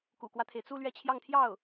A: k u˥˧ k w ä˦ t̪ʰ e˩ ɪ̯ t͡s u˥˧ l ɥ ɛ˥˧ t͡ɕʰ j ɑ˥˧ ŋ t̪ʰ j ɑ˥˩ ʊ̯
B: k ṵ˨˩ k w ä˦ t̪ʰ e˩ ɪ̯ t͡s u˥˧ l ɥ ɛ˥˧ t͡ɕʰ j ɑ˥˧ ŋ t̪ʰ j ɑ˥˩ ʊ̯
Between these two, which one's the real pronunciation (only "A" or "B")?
B